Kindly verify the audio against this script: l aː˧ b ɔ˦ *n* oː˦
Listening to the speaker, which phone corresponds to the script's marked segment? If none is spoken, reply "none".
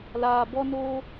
n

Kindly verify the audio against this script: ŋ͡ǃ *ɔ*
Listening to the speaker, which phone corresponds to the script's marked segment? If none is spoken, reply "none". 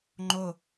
o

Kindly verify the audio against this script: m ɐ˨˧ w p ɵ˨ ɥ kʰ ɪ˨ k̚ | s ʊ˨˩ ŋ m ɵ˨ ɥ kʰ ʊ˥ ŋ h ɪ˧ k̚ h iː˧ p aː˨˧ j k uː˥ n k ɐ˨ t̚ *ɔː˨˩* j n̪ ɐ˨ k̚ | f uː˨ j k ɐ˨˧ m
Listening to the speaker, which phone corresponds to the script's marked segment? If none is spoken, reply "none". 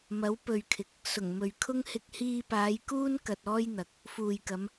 ɔː˥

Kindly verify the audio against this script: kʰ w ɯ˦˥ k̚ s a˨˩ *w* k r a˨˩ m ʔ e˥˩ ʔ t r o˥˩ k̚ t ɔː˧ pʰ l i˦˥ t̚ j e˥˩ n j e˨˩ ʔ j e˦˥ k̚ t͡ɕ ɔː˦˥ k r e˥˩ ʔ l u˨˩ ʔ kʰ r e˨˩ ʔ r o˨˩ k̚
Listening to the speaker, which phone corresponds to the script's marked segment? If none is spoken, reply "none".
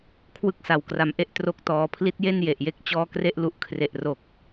w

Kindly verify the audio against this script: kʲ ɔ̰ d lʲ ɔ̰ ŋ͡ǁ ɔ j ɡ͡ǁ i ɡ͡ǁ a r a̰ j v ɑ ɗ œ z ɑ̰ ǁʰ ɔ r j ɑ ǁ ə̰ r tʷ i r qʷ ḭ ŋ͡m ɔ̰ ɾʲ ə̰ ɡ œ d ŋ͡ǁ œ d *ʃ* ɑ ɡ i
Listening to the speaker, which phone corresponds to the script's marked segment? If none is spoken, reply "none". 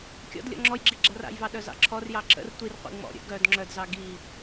z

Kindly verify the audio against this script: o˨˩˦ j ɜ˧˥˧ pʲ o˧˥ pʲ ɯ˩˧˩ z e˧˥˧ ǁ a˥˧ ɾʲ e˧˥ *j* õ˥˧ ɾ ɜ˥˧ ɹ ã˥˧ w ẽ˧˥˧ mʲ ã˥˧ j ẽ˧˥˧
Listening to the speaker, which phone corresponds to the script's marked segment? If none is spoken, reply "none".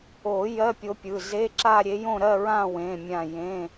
j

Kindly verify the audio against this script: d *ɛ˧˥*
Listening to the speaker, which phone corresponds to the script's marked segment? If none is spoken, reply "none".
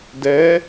ɛ˧˥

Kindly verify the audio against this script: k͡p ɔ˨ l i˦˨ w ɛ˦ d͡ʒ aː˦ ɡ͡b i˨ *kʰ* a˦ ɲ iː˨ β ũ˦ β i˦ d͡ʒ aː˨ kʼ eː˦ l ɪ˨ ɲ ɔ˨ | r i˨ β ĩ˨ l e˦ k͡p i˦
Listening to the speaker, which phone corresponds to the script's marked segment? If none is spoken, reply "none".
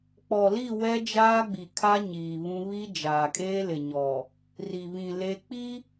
kʰ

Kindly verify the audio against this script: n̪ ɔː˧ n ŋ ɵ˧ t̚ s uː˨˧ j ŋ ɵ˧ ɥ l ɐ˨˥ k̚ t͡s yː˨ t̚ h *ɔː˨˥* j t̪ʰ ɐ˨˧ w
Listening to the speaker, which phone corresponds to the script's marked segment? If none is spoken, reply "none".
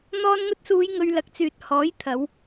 ɔː˨˥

